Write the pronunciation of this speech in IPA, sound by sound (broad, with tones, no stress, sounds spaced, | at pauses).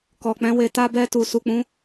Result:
k ɔ˨ k͡p ɛ̃˨˦ w e˧ t a˦ b ɛ˧ t u˨ s u˨ k͡p ũ˨˦